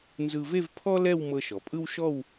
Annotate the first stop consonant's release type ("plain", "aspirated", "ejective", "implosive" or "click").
aspirated